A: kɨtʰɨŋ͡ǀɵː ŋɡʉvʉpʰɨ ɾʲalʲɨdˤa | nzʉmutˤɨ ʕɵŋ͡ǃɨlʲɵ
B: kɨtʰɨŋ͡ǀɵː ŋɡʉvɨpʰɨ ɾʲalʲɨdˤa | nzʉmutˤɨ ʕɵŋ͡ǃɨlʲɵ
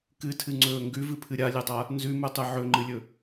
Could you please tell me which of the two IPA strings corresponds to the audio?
B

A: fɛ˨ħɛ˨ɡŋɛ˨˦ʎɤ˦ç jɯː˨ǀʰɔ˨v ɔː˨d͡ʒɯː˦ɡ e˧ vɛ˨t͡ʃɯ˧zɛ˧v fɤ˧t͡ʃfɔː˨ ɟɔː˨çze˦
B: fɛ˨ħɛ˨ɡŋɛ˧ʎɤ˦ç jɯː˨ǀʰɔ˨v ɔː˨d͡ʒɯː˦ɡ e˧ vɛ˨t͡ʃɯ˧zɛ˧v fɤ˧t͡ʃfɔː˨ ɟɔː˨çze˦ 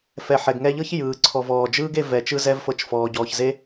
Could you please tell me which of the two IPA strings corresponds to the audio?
B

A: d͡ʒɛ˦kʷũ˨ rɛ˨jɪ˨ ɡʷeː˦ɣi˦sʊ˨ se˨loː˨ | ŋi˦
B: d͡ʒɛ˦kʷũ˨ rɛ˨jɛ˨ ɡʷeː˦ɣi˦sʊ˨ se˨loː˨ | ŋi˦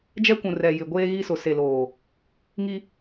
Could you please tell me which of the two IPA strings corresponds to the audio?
A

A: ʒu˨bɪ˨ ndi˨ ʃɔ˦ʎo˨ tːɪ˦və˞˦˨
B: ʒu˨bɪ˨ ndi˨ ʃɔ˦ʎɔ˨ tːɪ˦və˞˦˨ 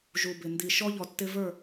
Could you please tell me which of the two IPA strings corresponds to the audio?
B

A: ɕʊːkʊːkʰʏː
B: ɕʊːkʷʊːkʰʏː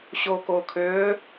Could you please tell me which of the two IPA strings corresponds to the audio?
A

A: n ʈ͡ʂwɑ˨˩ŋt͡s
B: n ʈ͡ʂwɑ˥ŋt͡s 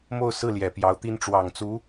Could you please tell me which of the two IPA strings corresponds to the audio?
A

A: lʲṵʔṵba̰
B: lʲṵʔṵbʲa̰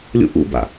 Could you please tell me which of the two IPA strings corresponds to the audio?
A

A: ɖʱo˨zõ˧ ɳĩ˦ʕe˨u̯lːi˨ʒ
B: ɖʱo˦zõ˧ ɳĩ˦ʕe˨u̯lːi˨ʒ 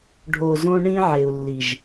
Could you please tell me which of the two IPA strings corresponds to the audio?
A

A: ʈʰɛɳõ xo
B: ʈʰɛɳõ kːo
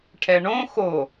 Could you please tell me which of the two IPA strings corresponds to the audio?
A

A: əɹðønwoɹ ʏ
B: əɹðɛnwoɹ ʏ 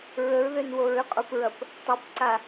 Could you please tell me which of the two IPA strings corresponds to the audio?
A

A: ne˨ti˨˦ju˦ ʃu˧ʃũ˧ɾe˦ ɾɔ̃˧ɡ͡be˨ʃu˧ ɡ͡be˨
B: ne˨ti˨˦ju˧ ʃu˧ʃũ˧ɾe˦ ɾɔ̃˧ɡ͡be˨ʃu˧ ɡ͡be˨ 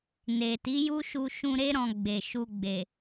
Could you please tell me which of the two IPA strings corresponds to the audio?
A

